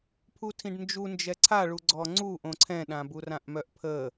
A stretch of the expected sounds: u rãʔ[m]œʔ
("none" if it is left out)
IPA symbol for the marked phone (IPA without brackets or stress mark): m